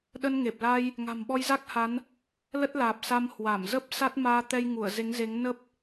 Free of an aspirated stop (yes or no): yes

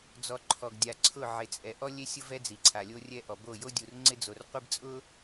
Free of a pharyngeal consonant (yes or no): no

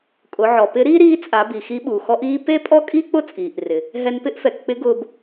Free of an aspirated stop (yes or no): yes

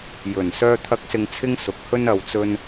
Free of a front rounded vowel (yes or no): no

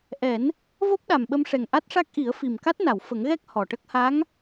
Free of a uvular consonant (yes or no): yes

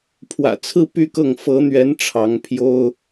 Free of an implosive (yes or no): yes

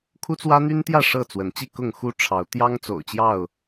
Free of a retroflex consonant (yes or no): no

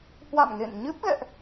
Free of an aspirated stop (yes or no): yes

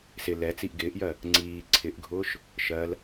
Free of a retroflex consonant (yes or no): yes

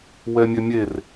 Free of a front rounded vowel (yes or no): no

